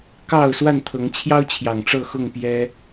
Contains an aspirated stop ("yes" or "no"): yes